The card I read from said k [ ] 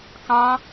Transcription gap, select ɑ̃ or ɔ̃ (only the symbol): ɑ̃